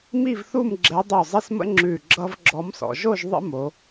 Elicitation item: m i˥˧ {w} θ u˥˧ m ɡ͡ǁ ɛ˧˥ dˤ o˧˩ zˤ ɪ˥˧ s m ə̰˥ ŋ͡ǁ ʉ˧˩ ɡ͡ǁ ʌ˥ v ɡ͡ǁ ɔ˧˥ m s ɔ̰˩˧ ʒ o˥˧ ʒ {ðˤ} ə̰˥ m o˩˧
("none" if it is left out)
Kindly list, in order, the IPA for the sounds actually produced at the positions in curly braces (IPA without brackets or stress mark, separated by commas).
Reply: v, ðˤ